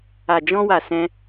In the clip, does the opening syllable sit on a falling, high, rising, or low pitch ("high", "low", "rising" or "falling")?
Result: low